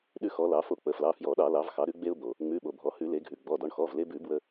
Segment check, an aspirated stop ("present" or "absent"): absent